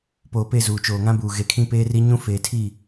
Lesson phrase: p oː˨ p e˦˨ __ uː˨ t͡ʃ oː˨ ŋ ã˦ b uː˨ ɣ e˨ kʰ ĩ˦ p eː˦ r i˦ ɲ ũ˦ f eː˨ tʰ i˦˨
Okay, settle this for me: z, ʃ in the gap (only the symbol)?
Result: z